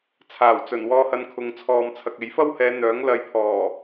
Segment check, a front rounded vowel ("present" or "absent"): present